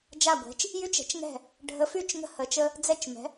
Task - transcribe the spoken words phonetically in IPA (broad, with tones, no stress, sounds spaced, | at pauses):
d͡ʒ a˧˩ ɡʷ ɛ̤˩˧ t͡ʃ | j y˧ t͡ʃ ɛ̤˩˧ t͡ʃ ŋ ɛ̤˧˩ | ɖʱ ə˩˧ f y˧˩ t͡ʃ ŋ ə̤˧˩ h ə˩˧ t͡ʃ ə˧ | d͡z ɛ˧ t͡ʃ m ɛ̤˩˧